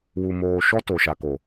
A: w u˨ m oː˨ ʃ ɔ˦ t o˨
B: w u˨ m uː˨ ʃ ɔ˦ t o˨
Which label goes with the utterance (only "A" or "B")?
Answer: A